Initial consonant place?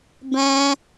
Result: labial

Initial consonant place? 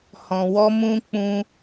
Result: glottal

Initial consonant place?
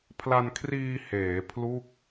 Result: labial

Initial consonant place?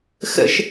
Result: velar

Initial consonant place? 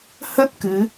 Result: glottal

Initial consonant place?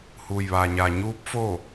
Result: glottal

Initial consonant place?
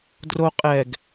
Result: alveolar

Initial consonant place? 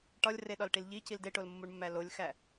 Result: retroflex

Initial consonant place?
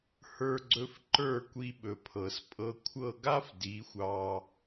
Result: glottal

